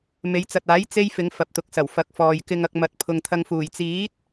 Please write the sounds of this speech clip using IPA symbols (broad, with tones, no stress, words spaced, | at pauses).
me˨˧jt͡sɐ˨t̚aː˨˥j t͡se˥jfɪ˨˧ŋ fɐ˨p̚t̪ʊ˨k̚sɐ˨˩w fɐ˨˥k̚fɔː˨j kɪ˧ŋɐ˧k̚ mɐ˨˥t̚pʰʊ˨ŋt̪ʰɐ˧ŋfuː˨˩j t͡siː˨˥t̚